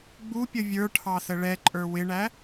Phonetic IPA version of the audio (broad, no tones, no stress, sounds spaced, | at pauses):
ɡ͡b u pʲ ə vʲ ə˞ ʈʰ ɑ s ə ɭ ɛ ǃʼ ə˞ w ɪ ɳ æ